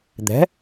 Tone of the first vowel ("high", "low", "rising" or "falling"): rising